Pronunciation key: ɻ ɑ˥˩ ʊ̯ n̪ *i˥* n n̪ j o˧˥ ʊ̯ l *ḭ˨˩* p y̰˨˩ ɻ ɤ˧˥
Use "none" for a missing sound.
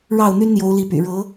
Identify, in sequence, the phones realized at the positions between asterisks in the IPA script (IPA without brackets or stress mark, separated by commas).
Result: y˥, i˧˥